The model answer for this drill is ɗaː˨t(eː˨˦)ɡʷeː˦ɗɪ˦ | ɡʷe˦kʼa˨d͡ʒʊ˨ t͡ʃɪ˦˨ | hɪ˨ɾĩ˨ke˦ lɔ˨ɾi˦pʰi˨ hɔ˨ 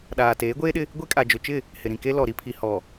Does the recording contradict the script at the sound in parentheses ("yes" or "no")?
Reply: no